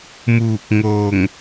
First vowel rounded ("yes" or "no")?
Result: yes